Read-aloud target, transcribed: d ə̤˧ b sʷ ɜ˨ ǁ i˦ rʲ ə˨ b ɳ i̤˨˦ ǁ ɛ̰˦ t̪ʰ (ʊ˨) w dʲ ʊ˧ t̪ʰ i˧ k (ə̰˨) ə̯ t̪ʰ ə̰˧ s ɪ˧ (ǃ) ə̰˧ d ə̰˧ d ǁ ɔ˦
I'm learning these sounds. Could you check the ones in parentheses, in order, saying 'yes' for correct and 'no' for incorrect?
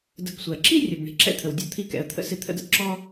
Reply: no, no, no

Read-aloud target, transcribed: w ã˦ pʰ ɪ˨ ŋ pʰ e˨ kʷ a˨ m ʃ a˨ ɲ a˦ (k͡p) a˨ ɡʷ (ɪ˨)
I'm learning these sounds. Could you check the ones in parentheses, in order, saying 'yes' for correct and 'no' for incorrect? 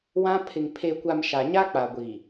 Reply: yes, no

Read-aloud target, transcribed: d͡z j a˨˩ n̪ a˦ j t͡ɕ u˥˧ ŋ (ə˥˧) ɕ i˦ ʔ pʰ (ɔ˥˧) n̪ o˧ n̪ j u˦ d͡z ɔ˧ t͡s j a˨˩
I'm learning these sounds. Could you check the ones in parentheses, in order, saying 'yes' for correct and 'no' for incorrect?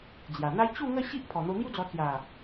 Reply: yes, no

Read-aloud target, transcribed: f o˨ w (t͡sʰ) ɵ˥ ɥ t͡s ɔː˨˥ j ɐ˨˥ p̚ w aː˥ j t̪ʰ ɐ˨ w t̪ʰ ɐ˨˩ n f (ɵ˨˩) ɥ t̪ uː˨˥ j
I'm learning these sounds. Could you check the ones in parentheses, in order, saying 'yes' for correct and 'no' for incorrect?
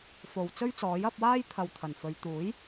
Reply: no, no

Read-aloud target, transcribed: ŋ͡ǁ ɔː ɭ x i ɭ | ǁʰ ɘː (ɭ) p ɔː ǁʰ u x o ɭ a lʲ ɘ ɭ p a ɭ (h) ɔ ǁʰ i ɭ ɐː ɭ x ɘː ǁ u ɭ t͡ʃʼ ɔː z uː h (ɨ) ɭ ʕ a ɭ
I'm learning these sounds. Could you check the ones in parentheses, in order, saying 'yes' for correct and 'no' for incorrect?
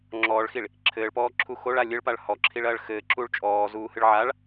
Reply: yes, yes, yes

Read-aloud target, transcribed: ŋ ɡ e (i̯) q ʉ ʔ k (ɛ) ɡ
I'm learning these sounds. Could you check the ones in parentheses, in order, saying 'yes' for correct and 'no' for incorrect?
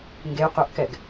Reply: no, yes

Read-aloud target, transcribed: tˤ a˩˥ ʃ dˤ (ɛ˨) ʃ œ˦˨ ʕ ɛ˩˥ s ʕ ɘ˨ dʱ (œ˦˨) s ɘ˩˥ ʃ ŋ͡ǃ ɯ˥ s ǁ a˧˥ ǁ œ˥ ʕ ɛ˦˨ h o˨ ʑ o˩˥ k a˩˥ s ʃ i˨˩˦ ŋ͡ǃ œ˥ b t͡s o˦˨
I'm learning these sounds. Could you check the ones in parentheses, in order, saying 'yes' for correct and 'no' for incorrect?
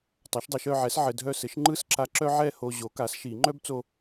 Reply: no, yes

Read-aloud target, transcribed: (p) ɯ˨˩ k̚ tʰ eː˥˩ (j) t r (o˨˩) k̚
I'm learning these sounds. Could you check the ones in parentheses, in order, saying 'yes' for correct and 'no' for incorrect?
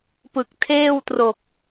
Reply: yes, no, yes

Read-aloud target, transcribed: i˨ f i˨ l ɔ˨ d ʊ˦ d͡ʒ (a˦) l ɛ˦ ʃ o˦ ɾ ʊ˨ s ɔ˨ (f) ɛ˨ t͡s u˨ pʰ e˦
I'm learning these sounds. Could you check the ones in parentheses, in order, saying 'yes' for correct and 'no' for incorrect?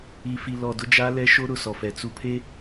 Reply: yes, yes

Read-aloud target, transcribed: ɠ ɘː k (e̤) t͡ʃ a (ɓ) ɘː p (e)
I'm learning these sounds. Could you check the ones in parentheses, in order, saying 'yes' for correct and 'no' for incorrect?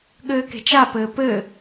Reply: yes, no, no

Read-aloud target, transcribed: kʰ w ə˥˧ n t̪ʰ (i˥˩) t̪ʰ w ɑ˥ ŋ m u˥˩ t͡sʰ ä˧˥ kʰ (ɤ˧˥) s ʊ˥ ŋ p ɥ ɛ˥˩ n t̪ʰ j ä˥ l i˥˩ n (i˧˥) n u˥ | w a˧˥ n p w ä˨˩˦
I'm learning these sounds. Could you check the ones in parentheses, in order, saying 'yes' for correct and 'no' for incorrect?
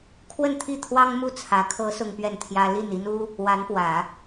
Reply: yes, yes, no

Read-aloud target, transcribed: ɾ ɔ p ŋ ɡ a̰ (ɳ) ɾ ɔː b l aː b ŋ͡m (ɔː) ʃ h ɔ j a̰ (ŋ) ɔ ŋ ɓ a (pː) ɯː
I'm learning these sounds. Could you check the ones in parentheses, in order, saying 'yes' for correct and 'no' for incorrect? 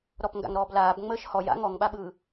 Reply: no, no, yes, no

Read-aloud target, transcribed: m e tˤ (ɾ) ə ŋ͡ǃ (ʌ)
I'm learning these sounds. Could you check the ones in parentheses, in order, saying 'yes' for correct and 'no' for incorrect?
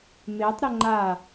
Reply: yes, no

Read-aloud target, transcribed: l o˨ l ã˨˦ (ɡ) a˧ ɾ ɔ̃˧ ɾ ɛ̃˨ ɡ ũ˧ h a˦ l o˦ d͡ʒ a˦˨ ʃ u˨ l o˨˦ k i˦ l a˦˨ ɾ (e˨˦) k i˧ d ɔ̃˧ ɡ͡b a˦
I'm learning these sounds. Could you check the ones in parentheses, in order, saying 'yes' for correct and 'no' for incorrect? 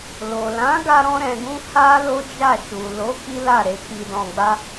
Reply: yes, yes

